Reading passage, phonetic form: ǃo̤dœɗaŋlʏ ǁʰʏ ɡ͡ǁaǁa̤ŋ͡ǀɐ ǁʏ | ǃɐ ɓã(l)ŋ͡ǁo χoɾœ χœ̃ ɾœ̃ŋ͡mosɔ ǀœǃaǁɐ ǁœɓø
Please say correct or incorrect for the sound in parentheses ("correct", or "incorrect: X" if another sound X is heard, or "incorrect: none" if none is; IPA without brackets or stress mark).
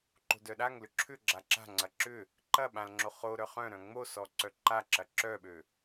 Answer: correct